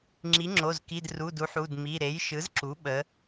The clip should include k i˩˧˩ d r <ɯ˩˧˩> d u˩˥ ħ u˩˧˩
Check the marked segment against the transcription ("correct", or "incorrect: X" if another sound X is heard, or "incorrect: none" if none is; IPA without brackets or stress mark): incorrect: u˩˧˩